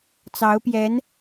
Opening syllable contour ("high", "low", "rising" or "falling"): rising